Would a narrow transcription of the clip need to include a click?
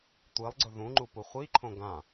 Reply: yes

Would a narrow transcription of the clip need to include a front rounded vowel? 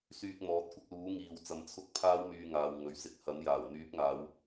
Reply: yes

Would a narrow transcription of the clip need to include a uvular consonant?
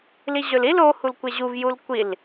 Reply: no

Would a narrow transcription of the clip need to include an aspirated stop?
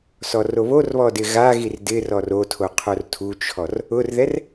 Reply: yes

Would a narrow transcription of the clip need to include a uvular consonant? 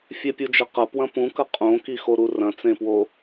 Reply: yes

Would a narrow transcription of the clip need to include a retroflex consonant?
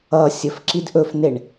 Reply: yes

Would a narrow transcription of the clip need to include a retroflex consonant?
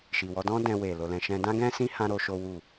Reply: no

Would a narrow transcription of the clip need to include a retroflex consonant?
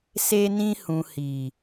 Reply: no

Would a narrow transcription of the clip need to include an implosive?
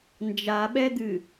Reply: yes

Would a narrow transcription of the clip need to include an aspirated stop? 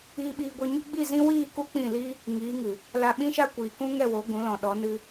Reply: no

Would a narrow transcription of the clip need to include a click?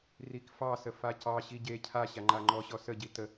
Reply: yes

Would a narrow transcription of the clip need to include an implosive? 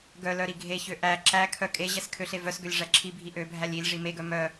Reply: no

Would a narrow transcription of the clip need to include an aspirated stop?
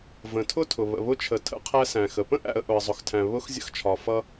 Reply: yes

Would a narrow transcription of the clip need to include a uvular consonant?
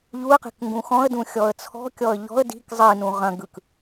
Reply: yes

